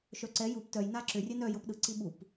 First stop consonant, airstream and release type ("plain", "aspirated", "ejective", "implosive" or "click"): click